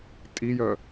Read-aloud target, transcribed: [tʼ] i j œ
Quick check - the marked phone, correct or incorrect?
correct